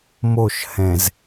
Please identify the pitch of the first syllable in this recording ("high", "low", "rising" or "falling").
falling